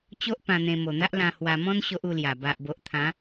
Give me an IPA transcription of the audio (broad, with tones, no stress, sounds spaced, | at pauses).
t͡ɕ o˦ ʔ p ã˧ n̪ ẽ˧ m o˨˩ n̪ a˦ ʔ l ã˧ h w a˧ m ɔ̃˦ n ɕ o˦ ʔ u˥˧ l j a˨˩ b a˨ ʔ b o˨ ʔ t̪ʰ ã˨˦